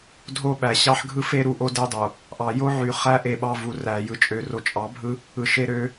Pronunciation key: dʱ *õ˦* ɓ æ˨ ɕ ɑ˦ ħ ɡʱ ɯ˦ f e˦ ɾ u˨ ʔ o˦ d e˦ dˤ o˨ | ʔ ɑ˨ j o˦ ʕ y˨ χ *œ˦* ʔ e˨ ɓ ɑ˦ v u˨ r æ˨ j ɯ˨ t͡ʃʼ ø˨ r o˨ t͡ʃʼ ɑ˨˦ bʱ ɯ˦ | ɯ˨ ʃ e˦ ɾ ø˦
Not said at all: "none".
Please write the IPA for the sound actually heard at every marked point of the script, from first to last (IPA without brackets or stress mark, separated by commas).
o˦, æ˦